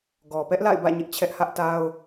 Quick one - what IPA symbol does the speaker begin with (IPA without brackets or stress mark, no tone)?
ɡ